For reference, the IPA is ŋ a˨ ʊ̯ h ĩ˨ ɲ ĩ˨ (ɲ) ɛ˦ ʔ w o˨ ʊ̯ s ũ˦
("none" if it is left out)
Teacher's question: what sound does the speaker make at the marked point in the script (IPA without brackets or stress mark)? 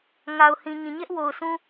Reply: ɲ